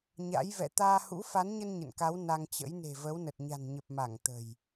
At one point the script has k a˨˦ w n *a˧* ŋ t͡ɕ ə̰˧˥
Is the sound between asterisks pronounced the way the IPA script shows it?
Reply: yes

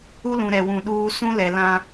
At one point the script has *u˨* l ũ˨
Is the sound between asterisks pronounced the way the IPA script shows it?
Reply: no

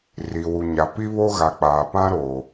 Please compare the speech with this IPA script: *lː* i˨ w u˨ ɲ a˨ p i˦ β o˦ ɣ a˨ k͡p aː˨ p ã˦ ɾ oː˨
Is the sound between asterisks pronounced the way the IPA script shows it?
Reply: no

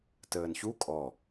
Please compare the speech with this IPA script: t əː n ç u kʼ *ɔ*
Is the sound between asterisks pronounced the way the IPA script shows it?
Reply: yes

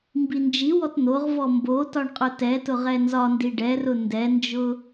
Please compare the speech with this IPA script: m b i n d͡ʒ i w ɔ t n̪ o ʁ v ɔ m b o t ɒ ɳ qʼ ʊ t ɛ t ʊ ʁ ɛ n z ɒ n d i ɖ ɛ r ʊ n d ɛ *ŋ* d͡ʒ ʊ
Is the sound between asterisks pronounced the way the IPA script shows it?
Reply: no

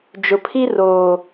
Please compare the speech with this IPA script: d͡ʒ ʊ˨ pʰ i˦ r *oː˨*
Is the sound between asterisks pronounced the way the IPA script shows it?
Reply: yes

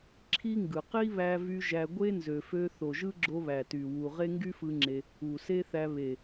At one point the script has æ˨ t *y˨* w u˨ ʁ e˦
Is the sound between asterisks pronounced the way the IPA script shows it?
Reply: yes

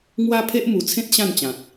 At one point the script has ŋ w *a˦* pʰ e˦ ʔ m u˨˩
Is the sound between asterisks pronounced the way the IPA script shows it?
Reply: yes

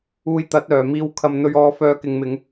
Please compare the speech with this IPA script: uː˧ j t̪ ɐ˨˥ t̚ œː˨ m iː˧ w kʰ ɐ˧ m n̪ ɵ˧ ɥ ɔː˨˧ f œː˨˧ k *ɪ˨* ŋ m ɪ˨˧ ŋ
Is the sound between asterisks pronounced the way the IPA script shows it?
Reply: yes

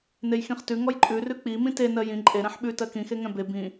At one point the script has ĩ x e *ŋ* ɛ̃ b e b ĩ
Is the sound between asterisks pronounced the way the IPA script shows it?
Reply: yes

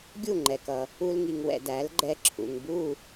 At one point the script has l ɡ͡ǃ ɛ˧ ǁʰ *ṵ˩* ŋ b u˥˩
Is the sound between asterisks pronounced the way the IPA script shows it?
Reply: yes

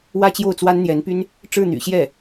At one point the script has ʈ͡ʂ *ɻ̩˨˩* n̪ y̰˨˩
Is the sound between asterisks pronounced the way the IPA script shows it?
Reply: no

